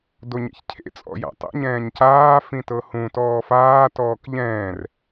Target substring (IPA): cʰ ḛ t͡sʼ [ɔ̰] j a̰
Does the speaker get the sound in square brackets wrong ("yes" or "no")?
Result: no